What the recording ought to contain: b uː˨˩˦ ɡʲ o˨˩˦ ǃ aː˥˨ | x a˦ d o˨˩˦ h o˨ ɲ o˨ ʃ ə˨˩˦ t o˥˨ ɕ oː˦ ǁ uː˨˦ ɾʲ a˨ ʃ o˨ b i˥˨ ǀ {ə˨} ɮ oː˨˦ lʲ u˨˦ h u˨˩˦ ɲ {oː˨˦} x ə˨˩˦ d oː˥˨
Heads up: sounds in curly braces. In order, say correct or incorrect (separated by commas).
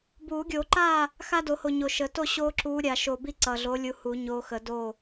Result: incorrect, correct